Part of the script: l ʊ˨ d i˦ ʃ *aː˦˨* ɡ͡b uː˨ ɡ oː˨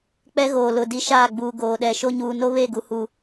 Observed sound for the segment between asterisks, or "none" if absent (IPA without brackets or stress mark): aː˦˨